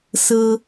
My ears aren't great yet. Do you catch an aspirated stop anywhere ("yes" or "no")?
no